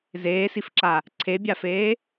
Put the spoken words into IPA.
zeːsifǁa | ǀʰebʲafeː

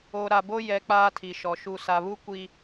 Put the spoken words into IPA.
o˨ ɾa˨bo˦ jɛ˨ k͡paː˦tʰi˨ʃɔ˨ ʃu˨sa˨βu˦ kʷi˦

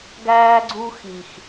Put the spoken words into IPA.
ɡæː˦ɡ͡ǀu˦ xi˨x

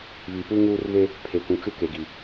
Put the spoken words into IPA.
βi˨puː˦ ŋuː˦rβe˦ | pʰe˨kʷũ˨t͡ʃu˦ ke˨ɡi˨

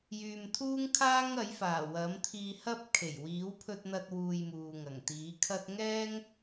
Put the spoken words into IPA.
jyː˨mt̪ʰuː˥ŋkʰaː˥ŋɐ˨˥j faː˨˩wɐ˨˥mt̪ʰiː˧hɐ˥p̚ kʰe˨˩jwiː˨˥wpʰɵ˧t̚n̪ɐ˧t̚ wuː˧jmuː˨ŋɐ˨˩ŋ t̪iː˨˥kʰɐ˥t̚ ŋɛː˥ŋ

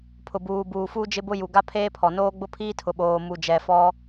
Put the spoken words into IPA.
pʰʊ˨buː˨buː˨fuː˦ d͡ʒɪ˦bʊ˦ju˨ ɡa˦pʰeː˦pʰɔ˨noː˦ ɡ͡bʊ˦pʰiː˦tʰʊ˨ ɓoː˨mu˨d͡ʒɛ˨fɔ˦

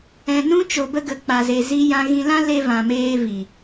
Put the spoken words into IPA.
ɛ̃˨nũ˧ t͡ʃo˨bə˧ɡə˨ k͡pa˨ze˨ zi˧jã˧ɣĩ˧lã˦ le˧vã˨ meː˧vi˨

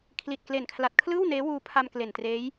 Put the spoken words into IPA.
kʰli˨˩t̚kle˨˩nkʰla˨˩t̚ kʰlɯː˥˩w neː˦˥wuː˧pʰa˧m kle˨˩ntreː˦˥j

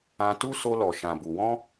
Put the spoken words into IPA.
ã˧tu˦ so˧lɔ˨ʃã˨bu˨ wɔ̃˧

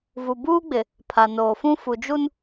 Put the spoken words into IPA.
vu˨buː˦ɡ͡bɪ˨ | pʰa˨noː˨fũ˦ fu˨d͡ʒu˦n

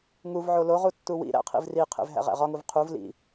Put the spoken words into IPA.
ŋuvʕo loʁu tːuwḭɾæ̰ qʰḭvriqʰḛv ɦæ̰ʁæ̰ʁɒŋuv qʰuv lḭ

